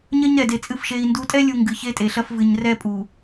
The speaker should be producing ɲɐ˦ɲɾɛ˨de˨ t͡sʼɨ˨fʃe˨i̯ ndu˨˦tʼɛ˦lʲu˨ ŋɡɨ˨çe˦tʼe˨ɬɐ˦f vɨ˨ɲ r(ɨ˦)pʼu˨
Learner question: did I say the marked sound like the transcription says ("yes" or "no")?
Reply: no